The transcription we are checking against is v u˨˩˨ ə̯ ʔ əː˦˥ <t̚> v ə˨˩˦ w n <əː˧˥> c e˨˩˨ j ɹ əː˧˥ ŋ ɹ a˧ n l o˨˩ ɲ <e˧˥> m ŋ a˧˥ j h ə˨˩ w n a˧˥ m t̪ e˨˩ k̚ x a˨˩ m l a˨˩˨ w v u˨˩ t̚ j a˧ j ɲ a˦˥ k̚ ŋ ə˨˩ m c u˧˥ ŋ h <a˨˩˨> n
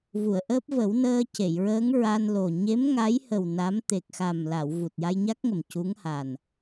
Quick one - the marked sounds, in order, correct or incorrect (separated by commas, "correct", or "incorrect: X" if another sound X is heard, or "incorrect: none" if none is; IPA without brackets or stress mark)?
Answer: incorrect: p̚, incorrect: əː˧, correct, incorrect: a˨˩